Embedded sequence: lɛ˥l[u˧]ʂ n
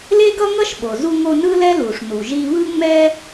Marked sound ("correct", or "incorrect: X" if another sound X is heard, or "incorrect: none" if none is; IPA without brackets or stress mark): incorrect: u˩